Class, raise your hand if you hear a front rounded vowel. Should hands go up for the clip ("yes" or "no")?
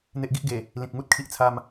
no